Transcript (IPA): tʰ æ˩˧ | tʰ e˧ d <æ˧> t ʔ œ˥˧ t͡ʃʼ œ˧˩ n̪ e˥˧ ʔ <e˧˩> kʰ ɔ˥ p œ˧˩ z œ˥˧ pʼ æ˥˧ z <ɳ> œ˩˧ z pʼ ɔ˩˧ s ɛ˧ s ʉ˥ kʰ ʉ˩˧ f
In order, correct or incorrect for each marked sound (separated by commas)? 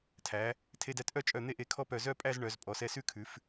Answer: correct, incorrect, correct